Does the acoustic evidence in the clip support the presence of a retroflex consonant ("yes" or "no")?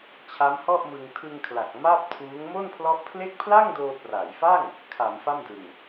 no